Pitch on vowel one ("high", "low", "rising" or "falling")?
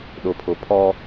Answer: low